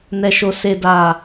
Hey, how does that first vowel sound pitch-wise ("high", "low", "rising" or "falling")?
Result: high